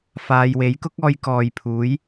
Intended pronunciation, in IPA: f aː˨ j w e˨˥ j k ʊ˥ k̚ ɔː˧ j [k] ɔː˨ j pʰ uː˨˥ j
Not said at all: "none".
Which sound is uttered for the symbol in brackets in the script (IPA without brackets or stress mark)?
k